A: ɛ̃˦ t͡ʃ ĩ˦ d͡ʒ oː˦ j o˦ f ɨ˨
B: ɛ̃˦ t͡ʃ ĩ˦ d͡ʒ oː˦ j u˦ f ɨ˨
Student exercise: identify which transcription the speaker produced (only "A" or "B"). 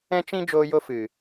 A